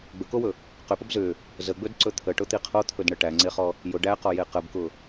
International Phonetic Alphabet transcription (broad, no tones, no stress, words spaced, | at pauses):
ɡ͡bɵkowɵ | qʏpəb zʏ | zəɡ͡bɵdǀɵ t̪ʰəʈʊt̪i qʰot̪ʰɵdɳə ʈæŋ͡ǀeχɔ | jʊ ɖæqɔje qəbkʊ